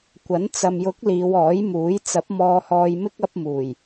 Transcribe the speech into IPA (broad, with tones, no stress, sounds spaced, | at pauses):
kʷ ɐ˨˥ n t͡s ɐ˨ m j ʊ˨˥ k̚ l iː˨˧ w ɔː˨˥ j m uː˨˥ j t͡s ɐ˨˥ p̚ m ɔː˧ h ɔː˧ j m ɪ˥ k̚ ɐ˥ p̚ m uː˨˩ j